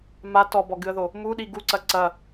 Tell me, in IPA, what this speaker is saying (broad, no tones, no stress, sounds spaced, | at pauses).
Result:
m a t ɔ b ɔ ɡ ɨ ə̯ ð o | m u ɗ i ɡ u ǀ ɐ ǀ ɐ